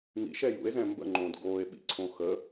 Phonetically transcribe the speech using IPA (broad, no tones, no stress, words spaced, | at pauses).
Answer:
ŋḭʃɛ jṵe̯zɛ̃ mbə̰ŋ͡ǃõːd ɡoːe̯ɓḭǀʰõ xə